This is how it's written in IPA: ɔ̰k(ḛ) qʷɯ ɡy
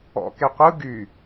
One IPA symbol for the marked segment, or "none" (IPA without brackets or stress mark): e